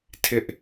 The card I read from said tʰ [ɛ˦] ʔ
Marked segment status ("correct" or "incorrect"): incorrect